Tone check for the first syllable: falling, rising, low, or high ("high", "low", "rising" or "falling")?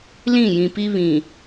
falling